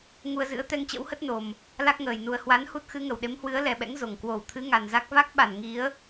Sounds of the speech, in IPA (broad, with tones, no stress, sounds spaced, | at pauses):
ŋ u˧ ə̯ z ɨ̰˧˥ ə̯ t̪ ɛ˧ ŋ t͡ɕ ə̰˧˥ w h ə˦˥ t̚ n o˨˩ m | l a˦˥ k̚ ŋ əː˨˩ j n u˨˩ ə̯ h w a˨˦ n h u˦˥ t̚ x ɨ˨˦ ŋ ə˧˩ w ɗ e˨˦ m h w ɨ˨˦ ə̯ l ɛ˨˩ ɓ ɛ̰˧˥ ŋ z o˧˩ ŋ k w o˧˩ w t̪ʰ ɨ˨˦ ŋ a˨˩ n z a˦˥ k̚ v a˦˥ k̚ ɓ a˧˩ n ŋ i˨˦ ə̯